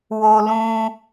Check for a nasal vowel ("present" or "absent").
present